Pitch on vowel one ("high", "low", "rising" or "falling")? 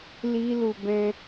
high